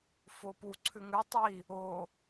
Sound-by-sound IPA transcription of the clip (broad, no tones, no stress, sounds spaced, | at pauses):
f o p u ǀʰ ʉ ŋ ʉ tˤ i | o